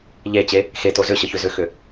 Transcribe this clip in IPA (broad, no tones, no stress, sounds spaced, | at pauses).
ʎ e t͡ɕ e | x e t o z ʏ ɕ ə ç ʏ z ʏ x ʏ